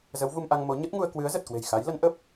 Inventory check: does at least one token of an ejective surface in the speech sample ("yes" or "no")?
no